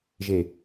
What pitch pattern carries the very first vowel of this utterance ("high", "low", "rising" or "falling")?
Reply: low